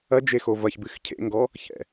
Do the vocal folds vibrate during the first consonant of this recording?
yes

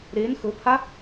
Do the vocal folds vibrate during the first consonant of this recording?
yes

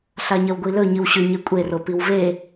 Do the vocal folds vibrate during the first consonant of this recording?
no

